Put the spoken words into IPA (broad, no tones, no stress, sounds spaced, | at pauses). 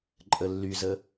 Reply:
ǃʼ ə lː y z ə